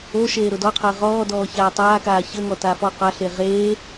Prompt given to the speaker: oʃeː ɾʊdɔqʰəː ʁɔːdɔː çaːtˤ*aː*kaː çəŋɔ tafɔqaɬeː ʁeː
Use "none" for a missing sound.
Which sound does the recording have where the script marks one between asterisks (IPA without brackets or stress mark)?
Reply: aː